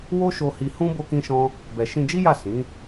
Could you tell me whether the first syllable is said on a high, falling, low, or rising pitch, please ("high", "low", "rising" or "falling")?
high